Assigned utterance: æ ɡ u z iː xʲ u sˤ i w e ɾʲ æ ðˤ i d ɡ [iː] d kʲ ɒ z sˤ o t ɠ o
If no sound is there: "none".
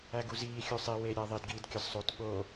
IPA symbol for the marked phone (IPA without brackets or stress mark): iː